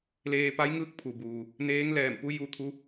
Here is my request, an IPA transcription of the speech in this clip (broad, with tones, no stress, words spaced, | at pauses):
leː˧pa˧˥j ŋɯː˧˥k̚pʰu˩buː˩ | neː˧˥ŋlɛː˧˩mpu˧˥ ju˧t̪ʰu˧˥